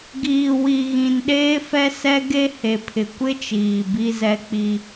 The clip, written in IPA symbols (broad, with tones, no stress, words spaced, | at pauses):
ɡiː˨wi˨ɣĩ˨n ɗeː˦fɛ˦sɛ˦ɡe˦ he˨pʰɪ˨kʷɪ˦t͡ʃiː˨ bi˦zɛ˦k͡pi˦